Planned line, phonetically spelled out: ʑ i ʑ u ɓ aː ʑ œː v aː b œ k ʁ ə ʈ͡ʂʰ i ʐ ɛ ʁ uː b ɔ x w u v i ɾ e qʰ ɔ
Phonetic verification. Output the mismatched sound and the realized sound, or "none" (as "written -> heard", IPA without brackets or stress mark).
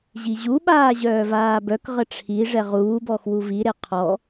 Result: none